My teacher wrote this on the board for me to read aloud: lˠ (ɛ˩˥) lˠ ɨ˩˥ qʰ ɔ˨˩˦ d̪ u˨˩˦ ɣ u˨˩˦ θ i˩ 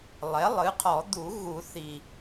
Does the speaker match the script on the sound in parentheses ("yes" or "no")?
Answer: yes